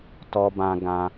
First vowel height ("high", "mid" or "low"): mid